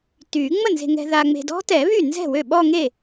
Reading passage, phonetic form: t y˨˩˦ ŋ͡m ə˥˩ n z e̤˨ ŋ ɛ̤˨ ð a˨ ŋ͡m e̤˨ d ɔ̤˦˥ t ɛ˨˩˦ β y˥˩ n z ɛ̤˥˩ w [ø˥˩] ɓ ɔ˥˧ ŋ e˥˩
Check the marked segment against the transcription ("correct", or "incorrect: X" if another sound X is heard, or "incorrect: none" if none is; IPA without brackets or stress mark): correct